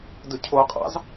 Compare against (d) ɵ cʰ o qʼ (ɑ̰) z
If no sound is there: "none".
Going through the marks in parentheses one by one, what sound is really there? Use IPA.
d, ɑ̰

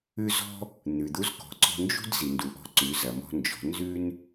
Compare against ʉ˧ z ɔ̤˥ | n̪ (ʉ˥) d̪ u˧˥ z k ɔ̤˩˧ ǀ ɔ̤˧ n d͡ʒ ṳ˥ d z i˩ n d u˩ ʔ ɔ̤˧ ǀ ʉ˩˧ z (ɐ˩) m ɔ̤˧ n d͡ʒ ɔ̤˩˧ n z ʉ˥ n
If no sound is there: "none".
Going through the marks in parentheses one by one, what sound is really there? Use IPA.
ʉ˩, ɐ˩

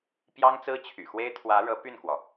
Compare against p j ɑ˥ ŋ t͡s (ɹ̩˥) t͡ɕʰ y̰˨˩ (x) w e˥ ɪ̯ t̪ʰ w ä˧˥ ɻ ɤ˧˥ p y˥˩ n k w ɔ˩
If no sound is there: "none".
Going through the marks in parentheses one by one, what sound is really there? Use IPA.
ɹ̩˥, x

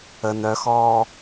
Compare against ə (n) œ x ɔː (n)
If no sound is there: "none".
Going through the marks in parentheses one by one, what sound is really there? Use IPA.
n, none

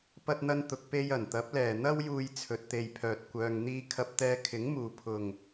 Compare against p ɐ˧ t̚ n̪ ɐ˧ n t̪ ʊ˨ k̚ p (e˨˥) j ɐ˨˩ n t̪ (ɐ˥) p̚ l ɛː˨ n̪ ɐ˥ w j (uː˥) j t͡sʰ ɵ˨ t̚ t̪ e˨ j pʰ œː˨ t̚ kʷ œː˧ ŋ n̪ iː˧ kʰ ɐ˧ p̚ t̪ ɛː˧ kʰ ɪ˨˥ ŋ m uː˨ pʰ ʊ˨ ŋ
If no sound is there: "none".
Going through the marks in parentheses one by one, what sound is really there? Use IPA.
e˧, ɐ˨˥, uː˧

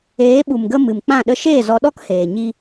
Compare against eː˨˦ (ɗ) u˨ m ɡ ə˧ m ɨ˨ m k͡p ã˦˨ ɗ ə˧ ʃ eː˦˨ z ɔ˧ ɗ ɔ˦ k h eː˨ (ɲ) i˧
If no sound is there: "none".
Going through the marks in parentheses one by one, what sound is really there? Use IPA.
ɓ, ɲ

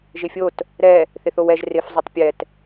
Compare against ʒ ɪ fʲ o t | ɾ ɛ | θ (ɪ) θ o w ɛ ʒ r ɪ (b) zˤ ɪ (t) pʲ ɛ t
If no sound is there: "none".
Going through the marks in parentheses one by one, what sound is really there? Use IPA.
ɪ, f, tˤ

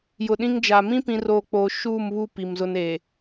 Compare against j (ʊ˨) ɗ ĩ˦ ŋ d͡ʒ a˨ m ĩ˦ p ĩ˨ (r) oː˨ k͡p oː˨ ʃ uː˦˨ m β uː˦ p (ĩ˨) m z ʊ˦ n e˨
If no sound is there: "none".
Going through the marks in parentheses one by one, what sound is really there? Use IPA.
ʊ˨, r, i˨

